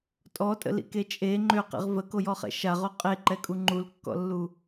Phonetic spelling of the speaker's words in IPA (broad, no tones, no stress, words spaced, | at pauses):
tʼɔtʼə̰lḭke t͡ʃʼe ŋ͡ǃøqḭʁ vəkojɔχɛ̰ ʃaʁo qʼeǃɛkʼu ŋ͡ǃulkːɔ̰lːu